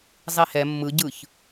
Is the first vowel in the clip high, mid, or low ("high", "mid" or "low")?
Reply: high